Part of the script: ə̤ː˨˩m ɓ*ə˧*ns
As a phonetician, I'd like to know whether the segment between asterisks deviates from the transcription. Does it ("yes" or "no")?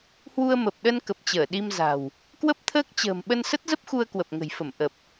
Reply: no